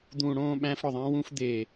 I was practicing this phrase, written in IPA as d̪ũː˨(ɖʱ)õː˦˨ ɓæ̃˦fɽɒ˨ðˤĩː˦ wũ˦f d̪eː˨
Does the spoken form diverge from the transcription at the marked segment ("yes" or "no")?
yes